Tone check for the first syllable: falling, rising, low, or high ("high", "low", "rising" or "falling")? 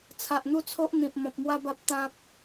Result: low